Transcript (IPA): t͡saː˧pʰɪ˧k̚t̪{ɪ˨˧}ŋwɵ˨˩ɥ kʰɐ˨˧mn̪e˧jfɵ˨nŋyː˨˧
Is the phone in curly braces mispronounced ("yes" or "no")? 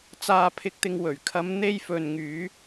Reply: yes